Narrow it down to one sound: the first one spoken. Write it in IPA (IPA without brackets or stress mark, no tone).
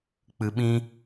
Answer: k͡p